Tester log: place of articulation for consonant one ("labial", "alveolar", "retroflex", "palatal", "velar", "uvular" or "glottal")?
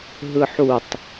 glottal